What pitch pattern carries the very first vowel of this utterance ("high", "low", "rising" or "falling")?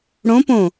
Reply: rising